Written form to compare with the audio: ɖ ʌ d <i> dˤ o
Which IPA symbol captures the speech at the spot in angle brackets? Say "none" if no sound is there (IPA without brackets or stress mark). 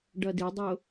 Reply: i